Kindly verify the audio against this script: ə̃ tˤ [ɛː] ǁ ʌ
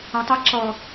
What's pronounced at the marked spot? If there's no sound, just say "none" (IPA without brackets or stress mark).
ɛ